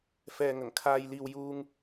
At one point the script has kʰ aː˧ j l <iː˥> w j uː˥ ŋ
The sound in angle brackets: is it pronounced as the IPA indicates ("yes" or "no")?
no